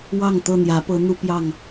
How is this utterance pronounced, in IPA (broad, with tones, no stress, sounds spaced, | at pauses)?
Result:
w ɑ˥˨ ŋ t̪ ɤ˥˨ n̪ j ä˨˦ p ɤ˨˦ n̪ u˦ p j ɑ˥˨ ŋ